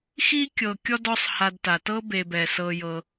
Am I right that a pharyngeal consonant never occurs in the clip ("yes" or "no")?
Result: yes